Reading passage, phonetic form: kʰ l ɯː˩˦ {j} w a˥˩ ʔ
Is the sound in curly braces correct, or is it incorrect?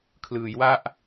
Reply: correct